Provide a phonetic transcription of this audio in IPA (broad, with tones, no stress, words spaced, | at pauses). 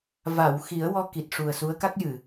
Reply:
va˨˩˨wxi˨˩˦ə̯ wɔ˧ ki˨˩t̚ʂu˨˩ə̯su˧˥ə̯ ka˦˥k̚jɨ˨˩˨